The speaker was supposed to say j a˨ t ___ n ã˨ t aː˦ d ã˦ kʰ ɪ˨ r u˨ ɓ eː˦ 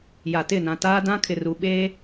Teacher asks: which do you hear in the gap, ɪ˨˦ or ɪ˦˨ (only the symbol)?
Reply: ɪ˦˨